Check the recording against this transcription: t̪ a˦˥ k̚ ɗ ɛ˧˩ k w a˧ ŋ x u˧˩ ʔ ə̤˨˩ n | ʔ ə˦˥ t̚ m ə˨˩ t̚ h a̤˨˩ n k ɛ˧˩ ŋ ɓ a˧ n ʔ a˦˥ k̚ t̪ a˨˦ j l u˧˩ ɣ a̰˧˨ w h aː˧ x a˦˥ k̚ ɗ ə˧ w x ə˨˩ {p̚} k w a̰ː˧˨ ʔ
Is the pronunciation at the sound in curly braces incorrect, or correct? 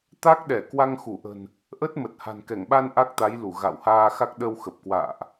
correct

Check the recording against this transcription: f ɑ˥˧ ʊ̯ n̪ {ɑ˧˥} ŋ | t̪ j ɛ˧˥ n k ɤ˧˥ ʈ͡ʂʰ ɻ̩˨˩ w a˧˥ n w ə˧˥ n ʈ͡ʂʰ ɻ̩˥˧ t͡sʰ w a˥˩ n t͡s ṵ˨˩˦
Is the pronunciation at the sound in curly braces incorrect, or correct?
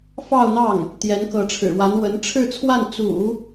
incorrect: ɑ˥˩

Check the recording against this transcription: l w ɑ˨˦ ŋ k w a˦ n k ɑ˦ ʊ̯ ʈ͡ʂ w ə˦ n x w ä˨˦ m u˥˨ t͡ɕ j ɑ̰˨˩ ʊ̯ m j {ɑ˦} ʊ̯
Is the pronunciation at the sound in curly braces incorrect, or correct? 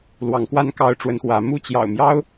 correct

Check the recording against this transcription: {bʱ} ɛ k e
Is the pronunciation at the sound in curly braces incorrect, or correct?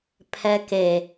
incorrect: pʰ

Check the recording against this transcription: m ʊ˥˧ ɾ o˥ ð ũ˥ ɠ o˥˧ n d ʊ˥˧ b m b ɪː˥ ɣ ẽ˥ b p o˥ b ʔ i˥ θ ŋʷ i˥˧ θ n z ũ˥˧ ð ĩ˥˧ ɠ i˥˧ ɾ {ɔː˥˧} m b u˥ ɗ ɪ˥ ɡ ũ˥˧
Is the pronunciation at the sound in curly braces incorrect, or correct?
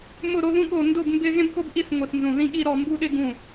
incorrect: ɔ˥˧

